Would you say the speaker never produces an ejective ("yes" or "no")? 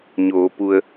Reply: yes